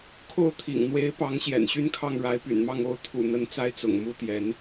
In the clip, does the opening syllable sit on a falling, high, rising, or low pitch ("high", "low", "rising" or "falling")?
falling